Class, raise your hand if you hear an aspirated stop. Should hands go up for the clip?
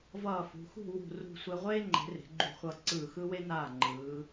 no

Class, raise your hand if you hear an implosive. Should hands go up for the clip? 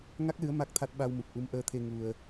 yes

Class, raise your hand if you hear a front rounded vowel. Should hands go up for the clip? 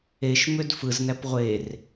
yes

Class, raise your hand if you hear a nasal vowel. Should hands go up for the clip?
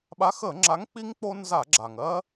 no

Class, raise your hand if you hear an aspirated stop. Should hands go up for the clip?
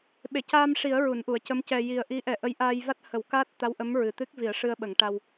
no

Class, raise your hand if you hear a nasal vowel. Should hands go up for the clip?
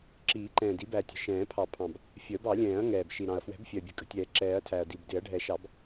yes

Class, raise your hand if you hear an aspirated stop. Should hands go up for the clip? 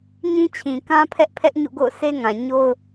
yes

